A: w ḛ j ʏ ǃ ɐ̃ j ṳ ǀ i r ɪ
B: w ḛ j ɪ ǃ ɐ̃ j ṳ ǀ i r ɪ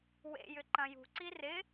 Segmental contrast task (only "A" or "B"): A